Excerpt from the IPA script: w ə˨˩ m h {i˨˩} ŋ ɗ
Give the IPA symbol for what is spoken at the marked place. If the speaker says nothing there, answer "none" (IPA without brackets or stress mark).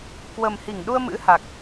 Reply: i˧˩